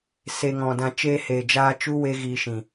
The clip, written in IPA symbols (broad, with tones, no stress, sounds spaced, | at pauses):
s e˧ ŋ ɔ̃˨ d ã˧ t͡ʃ eː˧ h eː˨ d͡ʒ aː˧ t͡ʃ u˦ w e˦ ɣ iː˧ ʃ ĩ˨